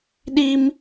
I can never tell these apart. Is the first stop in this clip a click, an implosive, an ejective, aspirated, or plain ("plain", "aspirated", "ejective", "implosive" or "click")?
implosive